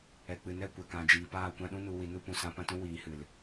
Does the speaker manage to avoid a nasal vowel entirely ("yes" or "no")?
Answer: no